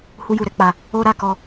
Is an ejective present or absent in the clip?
absent